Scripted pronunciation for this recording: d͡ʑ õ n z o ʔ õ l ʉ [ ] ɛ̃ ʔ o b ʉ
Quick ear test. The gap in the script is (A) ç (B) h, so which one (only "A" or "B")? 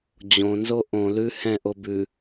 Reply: B